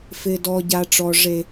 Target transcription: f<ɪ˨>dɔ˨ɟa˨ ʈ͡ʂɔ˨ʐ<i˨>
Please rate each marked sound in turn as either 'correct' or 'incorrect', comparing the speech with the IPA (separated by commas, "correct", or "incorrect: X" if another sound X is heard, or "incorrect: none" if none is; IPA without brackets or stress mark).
correct, incorrect: e˨